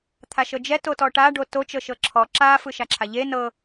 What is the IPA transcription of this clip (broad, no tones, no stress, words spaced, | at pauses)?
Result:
t̪ʰaʃɤd͡ʒɛ totɔʈa ɖoto t͡ʃɤʃɤǁʰɔ ǁa fɯʃaǁʰaʎe nɤ